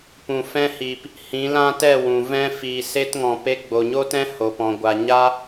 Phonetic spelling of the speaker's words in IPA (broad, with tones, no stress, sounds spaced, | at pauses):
p ũ˨ f ɛ̃˧ h iː˨ p | h ĩ˨˦ l ã˦ t ɛ˦˨ w ũ˨ v ɛ̃˦ f iː˨ s e˧ t ŋ ɔ̃˨ p e˧ ɡ͡b o˨ ɲ o˦ t ɛ̃˦ h o˨ p ɔ̃˨ ɡʷ a˨ ɲ a˦